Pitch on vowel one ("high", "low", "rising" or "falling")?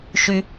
low